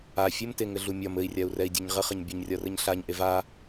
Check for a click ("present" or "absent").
absent